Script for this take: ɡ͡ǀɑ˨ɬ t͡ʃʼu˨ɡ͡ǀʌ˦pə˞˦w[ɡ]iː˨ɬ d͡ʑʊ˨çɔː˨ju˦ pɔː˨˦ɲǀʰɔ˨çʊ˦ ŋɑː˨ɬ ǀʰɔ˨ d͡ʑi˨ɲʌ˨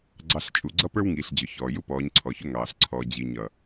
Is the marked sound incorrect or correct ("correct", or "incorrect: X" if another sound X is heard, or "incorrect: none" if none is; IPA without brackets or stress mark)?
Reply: incorrect: ŋ